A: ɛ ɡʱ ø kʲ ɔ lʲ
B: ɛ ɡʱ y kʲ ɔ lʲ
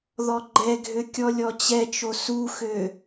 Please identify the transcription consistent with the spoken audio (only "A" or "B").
A